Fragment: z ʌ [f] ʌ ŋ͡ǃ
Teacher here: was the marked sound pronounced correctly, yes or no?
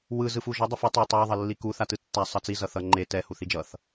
no